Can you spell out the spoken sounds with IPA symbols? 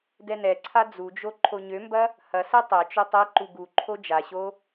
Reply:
dɛnɛǀʰa d͡zud͡ʒo ǃʰoɲømbɐ | hɐsɛ tˤɛt͡ʃø tˤɛǃu ɡuǃʰo d͡ʒaɕo

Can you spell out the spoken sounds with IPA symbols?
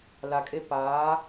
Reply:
la˨kʼe˦ paː˨˦

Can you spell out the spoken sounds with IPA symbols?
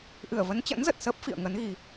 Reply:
ʔɨ˧˩ə̯və˨˦nt͡ɕə̰˧˥nzə˨˩t̚ səː˦˥p̚fḭ˧˨ə̯ŋə˨˦n ɣi˧

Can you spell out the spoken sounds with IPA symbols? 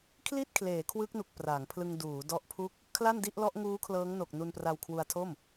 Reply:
kʰli˥˩t̚kʰleː˩˦ kʰwɯ˦˥k̚nu˨˩k̚ pra˩˦ŋ pʰlɯ˧ŋduː˩˦dɔ˦˥ʔpʰu˥˩k̚ | kʰla˥˩ndi˥˩ʔlɔ˦˥ʔ ŋuː˦˥kʰlɤː˦˥ŋno˨˩k̚ nu˧npra˧wkʰwu˧a̯tʰo˥˩m

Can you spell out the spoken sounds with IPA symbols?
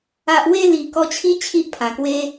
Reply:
a˨ʔwe˧ li˨˩kɔ˧t͡ɕʰi˦ t͡ɕʰi˦ʔpʰã˨˩kwe˦

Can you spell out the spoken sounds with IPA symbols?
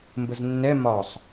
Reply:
mbəznːɛ mɒsˤ

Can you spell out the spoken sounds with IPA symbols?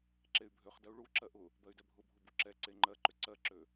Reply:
ǁey̯bʱøχdɜu̯ ɭuǁɜ ʔʊ | bɜy̯dɛbʱʊbʱʊ buǁɛǀe ŋ͡ǃɜǃʏ ǀɜǁø

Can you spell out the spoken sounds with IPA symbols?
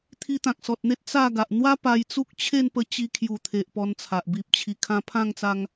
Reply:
t̪ʰi˧t̪ã˨k̚sɔ˨t̚n̪e˦t̚ t͡sa˥˧ɡa˨ʔ n̪wa˦ pa˧jt͡su˦k̚t͡ɕʰe˥˧npə˧ t͡ɕi˧kʰju˨˩t̪ʰe˨ʔ pɔ˧nt͡sʰa˨ʔ bi˨p̚ t͡ɕʰi˨˩kʰã˧pʰã˥˧ŋt͡sa˧ŋ

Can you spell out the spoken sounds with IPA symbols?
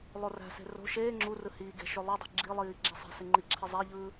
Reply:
lˠoræ̤se̤ ro̤ ʃeː ŋ͡ǁurɯ hiːɡe̤ ʃølˠudˤi̤ ɡ͡ǁilˠiː ɡ͡ǁæsˤæ̤se ŋ͡ǃiǁʰe zˤæʎɯː

